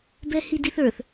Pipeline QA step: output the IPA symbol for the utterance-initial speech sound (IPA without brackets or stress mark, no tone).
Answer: b